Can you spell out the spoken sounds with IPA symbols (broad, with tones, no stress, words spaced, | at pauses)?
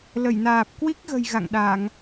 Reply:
lə˧˩jnaː˨˩p̚kwi˦˥k̚ɣə̤˨˩j ɣa̰˧˨ŋɗa˧˩˨ŋ